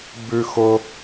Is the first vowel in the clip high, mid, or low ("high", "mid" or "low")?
high